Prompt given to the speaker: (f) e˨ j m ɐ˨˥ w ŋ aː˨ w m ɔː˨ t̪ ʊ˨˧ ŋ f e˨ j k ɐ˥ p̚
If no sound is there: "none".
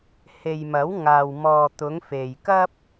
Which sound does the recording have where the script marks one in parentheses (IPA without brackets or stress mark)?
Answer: h